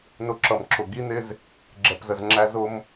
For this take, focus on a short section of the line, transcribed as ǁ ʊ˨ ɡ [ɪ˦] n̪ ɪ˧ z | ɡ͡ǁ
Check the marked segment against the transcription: incorrect: i˦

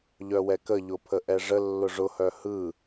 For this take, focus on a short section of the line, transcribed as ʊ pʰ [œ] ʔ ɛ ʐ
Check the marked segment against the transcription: incorrect: ə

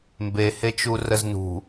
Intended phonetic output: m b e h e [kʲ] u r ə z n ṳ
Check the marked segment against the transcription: incorrect: t͡ʃ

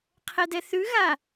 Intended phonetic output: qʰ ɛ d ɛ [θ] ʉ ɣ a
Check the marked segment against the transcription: correct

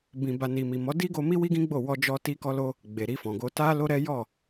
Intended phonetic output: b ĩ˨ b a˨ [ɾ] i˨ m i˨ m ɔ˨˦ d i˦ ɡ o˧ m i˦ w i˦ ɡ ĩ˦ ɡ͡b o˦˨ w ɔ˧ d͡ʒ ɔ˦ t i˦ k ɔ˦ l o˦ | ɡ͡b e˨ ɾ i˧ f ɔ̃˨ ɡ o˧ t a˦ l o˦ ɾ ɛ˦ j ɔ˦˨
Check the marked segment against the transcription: incorrect: n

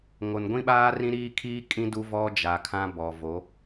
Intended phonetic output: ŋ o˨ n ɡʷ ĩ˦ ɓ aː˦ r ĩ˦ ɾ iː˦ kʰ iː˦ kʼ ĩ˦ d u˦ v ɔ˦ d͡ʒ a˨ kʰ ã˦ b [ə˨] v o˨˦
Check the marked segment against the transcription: incorrect: ɔ˨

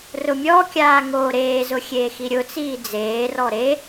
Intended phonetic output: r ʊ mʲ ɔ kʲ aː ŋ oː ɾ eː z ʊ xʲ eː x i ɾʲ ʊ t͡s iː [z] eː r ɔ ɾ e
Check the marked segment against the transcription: incorrect: d͡z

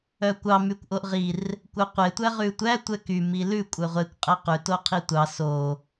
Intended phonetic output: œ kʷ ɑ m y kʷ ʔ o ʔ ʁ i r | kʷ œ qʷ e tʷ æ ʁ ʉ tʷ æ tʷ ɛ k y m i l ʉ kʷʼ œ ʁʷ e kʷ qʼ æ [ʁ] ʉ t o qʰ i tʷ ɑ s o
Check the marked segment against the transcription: incorrect: q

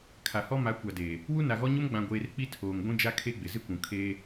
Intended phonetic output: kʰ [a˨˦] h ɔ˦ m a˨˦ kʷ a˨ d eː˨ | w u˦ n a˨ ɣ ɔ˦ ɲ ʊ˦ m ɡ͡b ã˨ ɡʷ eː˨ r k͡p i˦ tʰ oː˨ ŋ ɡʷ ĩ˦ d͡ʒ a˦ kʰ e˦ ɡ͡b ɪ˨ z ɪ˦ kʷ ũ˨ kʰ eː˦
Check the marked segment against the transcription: incorrect: a˨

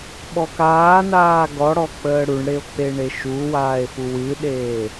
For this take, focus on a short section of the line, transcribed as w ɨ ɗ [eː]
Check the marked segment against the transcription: correct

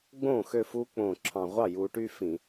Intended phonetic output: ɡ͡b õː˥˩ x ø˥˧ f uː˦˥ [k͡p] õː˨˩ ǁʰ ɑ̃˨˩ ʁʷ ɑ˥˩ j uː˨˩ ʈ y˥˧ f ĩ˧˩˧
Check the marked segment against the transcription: correct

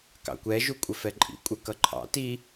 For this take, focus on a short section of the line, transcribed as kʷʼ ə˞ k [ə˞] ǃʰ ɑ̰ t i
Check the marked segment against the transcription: incorrect: ʌ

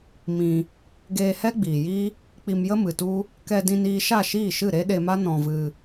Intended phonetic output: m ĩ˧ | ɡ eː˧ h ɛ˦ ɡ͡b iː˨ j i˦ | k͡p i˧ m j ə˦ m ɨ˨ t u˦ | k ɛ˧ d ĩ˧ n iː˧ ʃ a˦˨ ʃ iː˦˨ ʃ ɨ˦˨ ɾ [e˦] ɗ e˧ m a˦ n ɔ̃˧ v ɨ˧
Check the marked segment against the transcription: correct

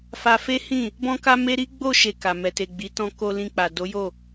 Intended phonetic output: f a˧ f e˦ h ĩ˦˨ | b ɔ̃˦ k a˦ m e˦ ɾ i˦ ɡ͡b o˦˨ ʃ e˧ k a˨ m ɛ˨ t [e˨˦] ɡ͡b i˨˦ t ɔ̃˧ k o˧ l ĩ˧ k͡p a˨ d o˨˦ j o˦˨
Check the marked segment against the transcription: incorrect: e˨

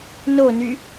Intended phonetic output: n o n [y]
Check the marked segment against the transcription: correct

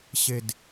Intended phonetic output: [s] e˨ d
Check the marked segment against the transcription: incorrect: ɕ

